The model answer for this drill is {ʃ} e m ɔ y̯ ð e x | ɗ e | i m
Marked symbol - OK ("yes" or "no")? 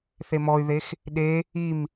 no